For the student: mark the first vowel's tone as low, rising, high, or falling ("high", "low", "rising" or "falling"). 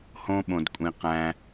high